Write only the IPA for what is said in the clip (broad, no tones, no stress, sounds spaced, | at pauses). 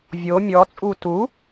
vʲ o mʲ ɔ t͡sʼ u t u